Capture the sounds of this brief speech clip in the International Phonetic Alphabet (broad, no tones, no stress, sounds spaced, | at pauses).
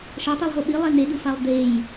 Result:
ʃ ʌ tˤ i lˠ ɦ o ɓ i lˠ ɛ n̪ e d̪ ɯ f a lˠ d̪ e j